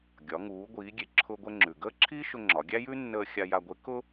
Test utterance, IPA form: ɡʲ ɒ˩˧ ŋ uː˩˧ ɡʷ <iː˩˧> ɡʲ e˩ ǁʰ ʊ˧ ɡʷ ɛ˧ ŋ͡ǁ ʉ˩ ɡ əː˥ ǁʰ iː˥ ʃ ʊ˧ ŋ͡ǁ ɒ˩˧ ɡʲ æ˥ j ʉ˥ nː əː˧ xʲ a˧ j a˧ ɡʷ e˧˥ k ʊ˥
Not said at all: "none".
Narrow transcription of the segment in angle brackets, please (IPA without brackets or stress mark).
iː˩˧